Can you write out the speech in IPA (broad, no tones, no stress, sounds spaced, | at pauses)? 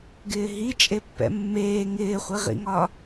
ɡ ɪː ɦ i t͡ʃʼ e pː ɛ̰ mː eː ŋ ɪː χʷ i ʁ ḭ ŋ ɒ